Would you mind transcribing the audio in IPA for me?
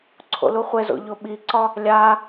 ǀʰo̰luχʷezo̰ ʎoɓiǀɒ | lʲa

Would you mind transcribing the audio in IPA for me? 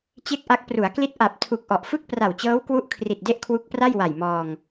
t͡ɕe˥˩k̚ʔa˦˥k̚ pru˩˦a̯kli˦˥t̚ ʔa˨˩p̚tʰu˨˩k̚ʔɔ˨˩ʔfɯ˥˩k̚ pra˨˩wt͡ɕɤː˦˥wkwu˦˥ʔkʰri˨˩t̚ de˥˩ʔkʰwu˦˥k̚pra˥˩j wa˨˩jmɔː˧ŋ

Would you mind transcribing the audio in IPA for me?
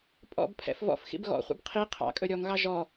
pʼɔ̰bpʰɛ̰f vɔ̰fxḭb ɣɔ̰χʷḭb qʰi qʰɑ̰kʼɵ ɾʲɔŋɣɑ ʒɔ

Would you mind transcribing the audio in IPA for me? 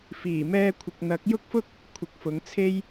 fiː˨˩mɛː˧kʷʰɪ˨k̚n̪ɐ˨˥k̚ jʊ˥k̚fʊ˥k̚ | kʷʰɪ˨˥k̚fʊ˨˧ŋt͡sʰe˥j

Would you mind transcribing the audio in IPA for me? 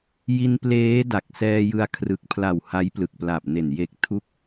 ji˧npleː˦˥ da˨˩k̚sɛː˧jɯ˧a̯ kʰrɯ˨˩k̚pʰla˨˩w ha˦˥jplɯ˨˩k̚pla˨˩p̚ne˨˩n je˨˩k̚tʰu˦˥k̚

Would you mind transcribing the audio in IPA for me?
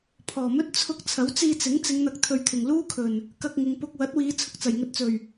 pʰɔː˨˩mɵ˥t̚ t͡sʰʊ˧k̚ t͡sʰɐ˨˥wt͡siː˧t͡sɪ˨˥ŋ t͡sɪ˨˧ŋn̪ɐ˨k̚ t̪ʰɵ˨ɥt̪ʰɪ˨˩ŋ luː˥kʰɵ˨˩n | kɐ˧k̚ ŋɪ˨ŋ pʊ˨k̚ wɐ˨˥t̚wiː˨˧ t͡sʰʊ˨k̚t͡sɐ˨˩jŋɵ˧t̚t͡sɵ˨˩ɥ

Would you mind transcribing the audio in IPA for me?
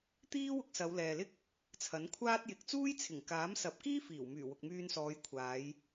t̪iː˥ wʊ˧k̚sɐ˨˧wlɛː˨lɪ˥k̚ | t͡sʰɐ˨˥nkʷʰaː˥t̚jɪ˨˥k̚ t͡suː˥jt͡sʰɪ˨˩ŋkaː˨˥msɐ˨˥p̚ kiː˥fiː˨˩wmyː˨˩ wʊ˨k̚myː˧nsɔː˨˧jkʷʰaː˨˧j

